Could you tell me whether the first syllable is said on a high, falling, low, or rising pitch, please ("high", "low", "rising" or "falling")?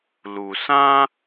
low